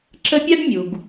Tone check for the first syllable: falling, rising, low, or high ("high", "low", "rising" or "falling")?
high